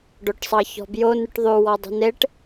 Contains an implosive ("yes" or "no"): no